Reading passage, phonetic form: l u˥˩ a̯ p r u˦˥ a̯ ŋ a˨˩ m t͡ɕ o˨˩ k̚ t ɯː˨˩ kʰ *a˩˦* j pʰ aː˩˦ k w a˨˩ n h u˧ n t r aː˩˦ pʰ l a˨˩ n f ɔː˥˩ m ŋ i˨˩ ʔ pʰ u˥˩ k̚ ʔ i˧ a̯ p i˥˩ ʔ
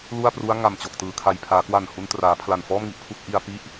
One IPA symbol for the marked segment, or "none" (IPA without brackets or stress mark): a˨˩